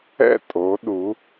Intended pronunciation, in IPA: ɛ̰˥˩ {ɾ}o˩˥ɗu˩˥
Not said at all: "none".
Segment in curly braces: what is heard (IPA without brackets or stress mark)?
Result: tʼ